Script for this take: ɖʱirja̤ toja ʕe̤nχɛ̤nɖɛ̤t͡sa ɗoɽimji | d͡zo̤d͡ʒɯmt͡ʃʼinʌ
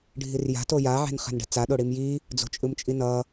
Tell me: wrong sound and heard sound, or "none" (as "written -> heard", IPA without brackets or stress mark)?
d͡ʒ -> t͡ʃʼ